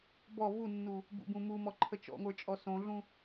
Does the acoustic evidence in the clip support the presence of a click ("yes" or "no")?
yes